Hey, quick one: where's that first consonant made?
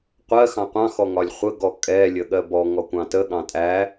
uvula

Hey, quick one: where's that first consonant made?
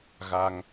velum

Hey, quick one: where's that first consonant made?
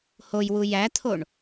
throat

